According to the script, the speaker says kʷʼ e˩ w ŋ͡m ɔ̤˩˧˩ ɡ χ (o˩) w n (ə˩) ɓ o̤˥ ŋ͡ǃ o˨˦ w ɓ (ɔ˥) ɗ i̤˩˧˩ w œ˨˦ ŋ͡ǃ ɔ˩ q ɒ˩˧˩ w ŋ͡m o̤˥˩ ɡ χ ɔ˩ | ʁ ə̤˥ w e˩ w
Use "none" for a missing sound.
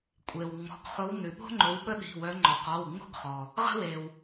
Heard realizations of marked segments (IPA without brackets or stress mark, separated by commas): o˨˦, ʉ˩, ə˥